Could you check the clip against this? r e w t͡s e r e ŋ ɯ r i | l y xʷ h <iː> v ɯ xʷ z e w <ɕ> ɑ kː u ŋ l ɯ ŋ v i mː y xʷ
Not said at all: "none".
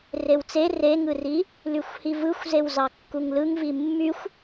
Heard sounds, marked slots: i, z

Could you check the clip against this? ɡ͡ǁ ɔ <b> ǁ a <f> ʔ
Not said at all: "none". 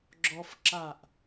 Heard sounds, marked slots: f, none

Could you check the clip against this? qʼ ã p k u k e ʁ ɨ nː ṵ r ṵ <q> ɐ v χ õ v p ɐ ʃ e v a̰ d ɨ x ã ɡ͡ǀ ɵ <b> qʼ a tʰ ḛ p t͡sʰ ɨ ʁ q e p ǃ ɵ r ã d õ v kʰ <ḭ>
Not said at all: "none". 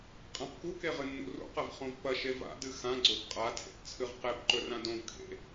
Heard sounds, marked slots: q, b, ḛ

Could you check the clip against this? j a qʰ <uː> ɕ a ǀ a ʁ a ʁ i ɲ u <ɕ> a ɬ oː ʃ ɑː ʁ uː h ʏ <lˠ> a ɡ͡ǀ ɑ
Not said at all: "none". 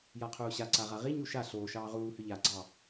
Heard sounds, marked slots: uː, ʃ, ʎ

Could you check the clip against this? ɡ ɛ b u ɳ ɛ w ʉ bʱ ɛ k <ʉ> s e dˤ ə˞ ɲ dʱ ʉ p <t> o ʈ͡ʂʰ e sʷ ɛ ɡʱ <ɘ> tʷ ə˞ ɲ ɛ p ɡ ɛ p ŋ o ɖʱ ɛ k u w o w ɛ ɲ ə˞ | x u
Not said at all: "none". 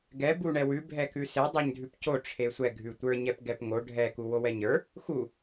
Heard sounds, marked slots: ʉ, c, ʉ

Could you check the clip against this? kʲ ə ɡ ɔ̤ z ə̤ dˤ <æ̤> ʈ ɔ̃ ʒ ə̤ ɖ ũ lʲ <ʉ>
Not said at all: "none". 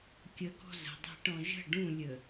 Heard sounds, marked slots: æ̤, ə

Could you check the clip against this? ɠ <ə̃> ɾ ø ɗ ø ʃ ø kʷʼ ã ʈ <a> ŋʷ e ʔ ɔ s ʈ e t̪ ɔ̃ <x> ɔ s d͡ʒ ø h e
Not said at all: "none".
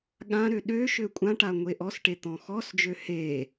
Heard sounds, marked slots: ã, a, x

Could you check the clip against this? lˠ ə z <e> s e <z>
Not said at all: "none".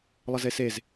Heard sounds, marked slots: e, z

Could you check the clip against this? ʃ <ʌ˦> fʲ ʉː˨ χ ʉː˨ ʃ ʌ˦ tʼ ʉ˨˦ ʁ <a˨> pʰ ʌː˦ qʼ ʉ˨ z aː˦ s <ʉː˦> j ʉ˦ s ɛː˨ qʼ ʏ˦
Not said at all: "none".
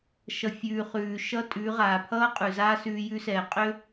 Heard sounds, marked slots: ʌ˨, aː˨, ʉː˦

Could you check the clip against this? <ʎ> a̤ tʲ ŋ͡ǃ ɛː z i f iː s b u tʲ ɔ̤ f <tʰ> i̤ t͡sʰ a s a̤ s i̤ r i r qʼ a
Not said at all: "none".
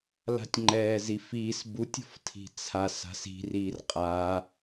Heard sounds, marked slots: l, tʰ

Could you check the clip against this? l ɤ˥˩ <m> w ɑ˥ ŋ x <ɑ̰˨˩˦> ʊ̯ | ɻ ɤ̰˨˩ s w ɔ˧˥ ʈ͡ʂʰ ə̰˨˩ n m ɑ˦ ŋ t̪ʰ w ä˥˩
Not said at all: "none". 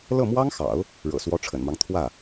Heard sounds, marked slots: m, ɑ̰˨˩˦

